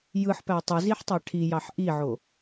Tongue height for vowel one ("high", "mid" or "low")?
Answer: high